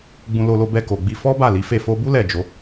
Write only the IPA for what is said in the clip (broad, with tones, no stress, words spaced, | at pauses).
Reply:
ɡ͡bũ˧lo˧lo˧ bɛ˧ko˨ɡ͡bi˧ fɔ˦ba˦˨ li˨˦fe˦˨ fo˧bu˦ lɛ˦˨d͡ʒo˨˦